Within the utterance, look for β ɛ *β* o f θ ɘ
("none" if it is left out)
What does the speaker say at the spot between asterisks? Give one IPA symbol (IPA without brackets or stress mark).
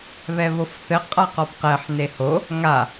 β